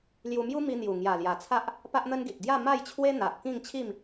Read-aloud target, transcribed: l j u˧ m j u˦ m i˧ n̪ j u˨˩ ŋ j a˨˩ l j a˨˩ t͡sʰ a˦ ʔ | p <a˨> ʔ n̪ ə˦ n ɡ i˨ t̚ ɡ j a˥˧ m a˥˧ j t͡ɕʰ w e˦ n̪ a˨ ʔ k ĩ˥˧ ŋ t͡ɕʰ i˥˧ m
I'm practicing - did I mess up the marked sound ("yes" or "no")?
yes